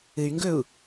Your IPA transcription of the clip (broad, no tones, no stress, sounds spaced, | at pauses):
ɨ y̯ ŋ ɡ ɵ u̯